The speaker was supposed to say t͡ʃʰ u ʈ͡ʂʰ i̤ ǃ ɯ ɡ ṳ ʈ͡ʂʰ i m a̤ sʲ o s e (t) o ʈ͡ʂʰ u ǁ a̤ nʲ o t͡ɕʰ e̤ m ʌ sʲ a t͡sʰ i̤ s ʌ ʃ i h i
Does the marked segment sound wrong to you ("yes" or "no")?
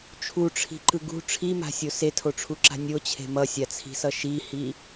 yes